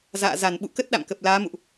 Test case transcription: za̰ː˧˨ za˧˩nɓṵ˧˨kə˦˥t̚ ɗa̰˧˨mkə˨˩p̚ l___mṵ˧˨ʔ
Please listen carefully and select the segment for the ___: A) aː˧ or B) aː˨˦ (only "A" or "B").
B